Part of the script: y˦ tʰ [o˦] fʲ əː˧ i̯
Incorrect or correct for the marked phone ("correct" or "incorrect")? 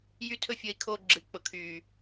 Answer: incorrect